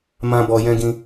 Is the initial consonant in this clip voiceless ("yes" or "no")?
no